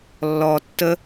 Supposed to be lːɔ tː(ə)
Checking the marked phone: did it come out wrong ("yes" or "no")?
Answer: no